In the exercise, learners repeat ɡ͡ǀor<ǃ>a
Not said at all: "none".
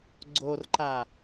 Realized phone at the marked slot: ǃ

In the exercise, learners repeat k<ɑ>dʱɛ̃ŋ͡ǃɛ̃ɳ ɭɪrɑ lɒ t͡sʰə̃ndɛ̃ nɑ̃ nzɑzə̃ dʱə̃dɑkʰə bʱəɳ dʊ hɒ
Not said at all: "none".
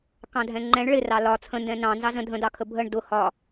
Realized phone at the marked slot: ɑ̃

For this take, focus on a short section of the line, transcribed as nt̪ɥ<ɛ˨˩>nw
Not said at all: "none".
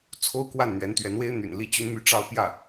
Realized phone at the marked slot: ɛ˧˥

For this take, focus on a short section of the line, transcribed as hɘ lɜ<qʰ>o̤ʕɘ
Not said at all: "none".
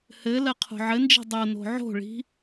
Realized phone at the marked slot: qʰ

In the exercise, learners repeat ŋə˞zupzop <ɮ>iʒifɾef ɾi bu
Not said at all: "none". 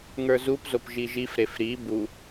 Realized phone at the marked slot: ʒ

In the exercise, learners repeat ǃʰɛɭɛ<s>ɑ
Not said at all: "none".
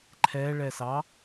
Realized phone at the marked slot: s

